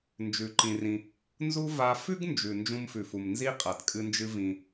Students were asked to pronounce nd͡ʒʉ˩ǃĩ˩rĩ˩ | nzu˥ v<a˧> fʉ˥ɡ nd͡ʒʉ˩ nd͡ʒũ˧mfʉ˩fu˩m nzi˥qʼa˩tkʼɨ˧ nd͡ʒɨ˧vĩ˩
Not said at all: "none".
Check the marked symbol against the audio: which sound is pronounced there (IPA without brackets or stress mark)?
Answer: a˧